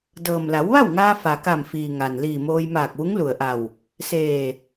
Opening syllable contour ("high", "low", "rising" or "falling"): low